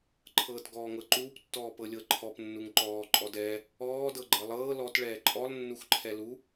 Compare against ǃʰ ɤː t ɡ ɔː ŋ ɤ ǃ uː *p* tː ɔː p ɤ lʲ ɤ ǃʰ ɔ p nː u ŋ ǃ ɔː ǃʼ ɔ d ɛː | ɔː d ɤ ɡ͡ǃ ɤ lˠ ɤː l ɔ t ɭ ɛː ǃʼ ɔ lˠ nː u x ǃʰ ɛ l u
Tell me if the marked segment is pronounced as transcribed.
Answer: yes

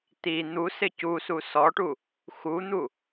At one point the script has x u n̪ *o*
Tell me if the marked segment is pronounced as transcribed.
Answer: no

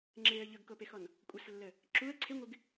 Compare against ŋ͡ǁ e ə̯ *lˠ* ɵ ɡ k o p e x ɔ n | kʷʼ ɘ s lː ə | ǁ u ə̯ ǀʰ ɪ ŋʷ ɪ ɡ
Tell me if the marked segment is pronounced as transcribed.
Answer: no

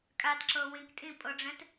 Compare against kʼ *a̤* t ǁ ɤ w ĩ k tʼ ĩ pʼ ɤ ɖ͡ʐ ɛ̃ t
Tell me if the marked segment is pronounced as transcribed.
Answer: no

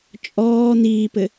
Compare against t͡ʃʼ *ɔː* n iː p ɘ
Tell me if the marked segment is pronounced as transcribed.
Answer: yes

